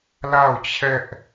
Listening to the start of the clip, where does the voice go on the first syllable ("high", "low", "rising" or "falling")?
falling